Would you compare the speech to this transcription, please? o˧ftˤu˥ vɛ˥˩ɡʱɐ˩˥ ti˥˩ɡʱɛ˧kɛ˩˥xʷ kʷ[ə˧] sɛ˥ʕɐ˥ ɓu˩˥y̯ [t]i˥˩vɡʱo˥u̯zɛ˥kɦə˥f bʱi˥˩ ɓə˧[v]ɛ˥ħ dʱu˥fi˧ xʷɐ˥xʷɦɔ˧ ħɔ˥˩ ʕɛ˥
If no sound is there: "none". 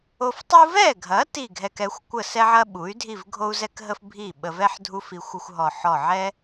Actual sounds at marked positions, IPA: ə˥˩, dʱ, v

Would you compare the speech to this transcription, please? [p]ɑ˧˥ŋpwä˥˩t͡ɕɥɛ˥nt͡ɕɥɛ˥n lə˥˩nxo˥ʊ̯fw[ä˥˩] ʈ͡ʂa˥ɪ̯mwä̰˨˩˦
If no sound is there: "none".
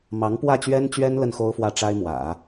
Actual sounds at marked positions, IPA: m, ä˥˩

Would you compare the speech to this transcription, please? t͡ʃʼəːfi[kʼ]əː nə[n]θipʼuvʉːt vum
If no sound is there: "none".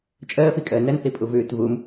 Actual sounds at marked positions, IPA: kʼ, n

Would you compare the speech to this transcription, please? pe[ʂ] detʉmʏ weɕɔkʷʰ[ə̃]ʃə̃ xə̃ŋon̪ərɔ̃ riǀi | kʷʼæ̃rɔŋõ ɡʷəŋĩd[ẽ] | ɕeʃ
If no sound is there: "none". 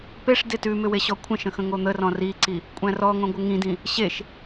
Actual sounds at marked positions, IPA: ʂ, ə̃, ĩ

